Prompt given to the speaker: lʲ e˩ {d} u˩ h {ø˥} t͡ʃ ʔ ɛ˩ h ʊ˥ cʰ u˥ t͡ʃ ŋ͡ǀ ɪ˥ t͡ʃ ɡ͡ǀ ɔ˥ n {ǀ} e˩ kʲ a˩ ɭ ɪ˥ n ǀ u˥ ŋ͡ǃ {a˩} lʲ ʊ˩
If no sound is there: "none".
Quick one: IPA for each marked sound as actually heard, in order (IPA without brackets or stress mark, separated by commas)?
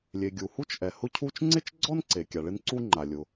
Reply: ɡʲ, u˥, ǀ, a˩